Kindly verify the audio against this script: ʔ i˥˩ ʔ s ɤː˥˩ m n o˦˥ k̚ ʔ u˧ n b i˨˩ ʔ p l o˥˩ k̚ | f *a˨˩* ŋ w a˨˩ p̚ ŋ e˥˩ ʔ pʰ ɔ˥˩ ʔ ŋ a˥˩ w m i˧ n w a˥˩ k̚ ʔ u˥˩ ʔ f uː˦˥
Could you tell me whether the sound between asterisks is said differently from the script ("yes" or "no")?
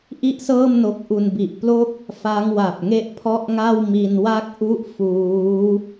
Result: yes